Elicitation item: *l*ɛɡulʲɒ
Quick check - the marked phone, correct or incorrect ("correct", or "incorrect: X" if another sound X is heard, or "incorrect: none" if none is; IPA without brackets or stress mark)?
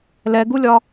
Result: correct